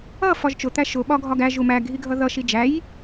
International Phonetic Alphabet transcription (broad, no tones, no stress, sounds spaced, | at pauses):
ʌ f ɒ ʒ t͡ʃ ʊ t̪ æ ʃ ʊ ɓ ɒ ɡʱ ɒ ɡ æ ʒ u m æ ɡʱ i ɡʱ ʌ ð ʌ ʃ i d͡ʒ æ j